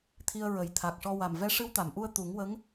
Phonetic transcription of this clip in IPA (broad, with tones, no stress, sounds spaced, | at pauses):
t̪ʰ i˧ ə̯ ɹ ə˨˩ j t̪ʰ a˨˩ k̚ ʂ ɔ˧ w a˨˩ m v ɛ˧ ʂ ɨ˧ w t̪ a˨˩˨ m ʔ u˧ ə̯ t̪ u˨˩˦ ŋ w ə˧˥ ŋ